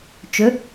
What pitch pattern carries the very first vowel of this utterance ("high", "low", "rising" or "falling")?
rising